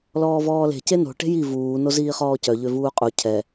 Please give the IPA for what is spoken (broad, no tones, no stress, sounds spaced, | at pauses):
l ɔː v ɔː l e̤ c e n o̤ ʈ e̤ j i v uː n o z iː χ ɔː c œ ʎ ø v uː qʼ u cʰ ɛ